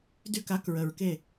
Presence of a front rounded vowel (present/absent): present